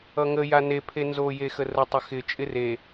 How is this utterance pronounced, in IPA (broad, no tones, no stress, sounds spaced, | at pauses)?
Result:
ʌ ŋ ə j a n e pʰ e n z o j e x ə r ə tˤ ə x ɪ t͡ʃʼ ɪ r e